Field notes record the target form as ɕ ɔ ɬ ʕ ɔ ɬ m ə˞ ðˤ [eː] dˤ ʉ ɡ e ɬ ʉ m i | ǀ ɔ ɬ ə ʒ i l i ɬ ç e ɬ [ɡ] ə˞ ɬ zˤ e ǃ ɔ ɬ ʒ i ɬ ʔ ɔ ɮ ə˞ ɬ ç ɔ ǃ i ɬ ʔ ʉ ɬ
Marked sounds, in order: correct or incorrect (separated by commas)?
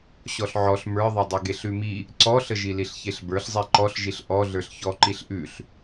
incorrect, incorrect